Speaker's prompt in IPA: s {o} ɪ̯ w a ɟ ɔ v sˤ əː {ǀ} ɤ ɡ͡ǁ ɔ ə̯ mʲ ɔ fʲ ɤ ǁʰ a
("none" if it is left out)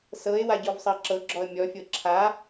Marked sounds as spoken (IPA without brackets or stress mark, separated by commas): ɤ, ǁ